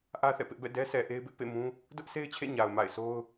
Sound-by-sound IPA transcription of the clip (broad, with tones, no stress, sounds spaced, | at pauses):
ʔ ä˦ θ ɛ̰˦˨ p ɪ˦ ʔ b ɛ̰˦˨ d ɛ˦ sʰ ɛ˨ ʔ e˦ ɪ̯ b ɪ˦ ʔ p ḛ˦˨ m ũ˦ | d ʊ˦ ʔ sʰ e˦ ɪ̯ t͡ɕʰ ḛ˦˨ ɲ a˨ ʊ̯ m a̰˦˨ ɪ̯ sʰ o˦ ʊ̯